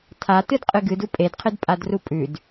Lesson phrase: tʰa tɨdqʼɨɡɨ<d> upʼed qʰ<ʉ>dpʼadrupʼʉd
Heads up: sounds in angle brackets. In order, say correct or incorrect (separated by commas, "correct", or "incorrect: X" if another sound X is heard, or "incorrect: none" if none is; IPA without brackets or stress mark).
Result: correct, incorrect: ɨ